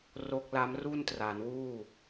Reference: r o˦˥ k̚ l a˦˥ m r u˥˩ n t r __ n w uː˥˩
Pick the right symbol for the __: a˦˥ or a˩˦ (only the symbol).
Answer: a˩˦